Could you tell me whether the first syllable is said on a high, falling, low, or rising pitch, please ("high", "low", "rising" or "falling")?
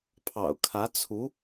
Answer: low